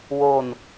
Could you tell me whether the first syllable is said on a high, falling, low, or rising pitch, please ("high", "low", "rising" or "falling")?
falling